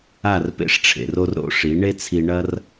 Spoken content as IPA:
a˦˨ r p ḛ˦ ʂ ʈ͡ʂʰ ḛ˨ r o˦ r ɾ o̰˦ ʂ i˨˦ ɳ e˦ t͡sʰ i˧ ɳ ɐ˦ r

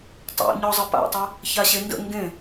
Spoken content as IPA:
tˤ o̰ ɲ ɔ zˤ ə p a̰ tˤ ɛ | ç a ɕ e n d ə̰ ŋ ɡ ẽ

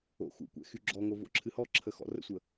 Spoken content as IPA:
o̰ x ṵ kʷ ɛ̰ x y ɡ͡ǁ ɔ ŋ o v o̰ ǁʰ ɨ h ɔ ǁʰ ə x ɔ̰ r ə̰ sʷ ə

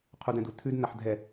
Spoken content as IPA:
qʰ u d ɛ̃ d u tʰ ʉ d n a ħ dʱ ɛ

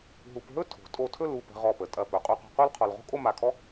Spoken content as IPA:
ɦ u˧ p ɦ ɵ˥ tʰ o̤˩˧ tʼ o˧˩ tʰ ɵ˥˧ l u˧˩ p ə̤˧ ʁ ɔ˧˩ p ə˩˧ tʼ ɐ˧˩ p ɵ˩˧ qʼ u˧ q o̤˧ q u˥ l qʰ ɔ˧ l ʁ o̤˥ kʼ o˥˧ m a˧˩ kʰ ɔ˥

